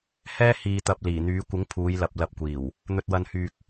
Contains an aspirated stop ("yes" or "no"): yes